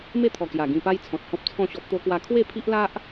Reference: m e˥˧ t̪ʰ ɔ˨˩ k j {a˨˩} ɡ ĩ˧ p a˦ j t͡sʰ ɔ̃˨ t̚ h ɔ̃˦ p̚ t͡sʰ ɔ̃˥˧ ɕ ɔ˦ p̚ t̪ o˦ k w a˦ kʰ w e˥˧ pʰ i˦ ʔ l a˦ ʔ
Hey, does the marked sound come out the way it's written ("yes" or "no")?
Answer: yes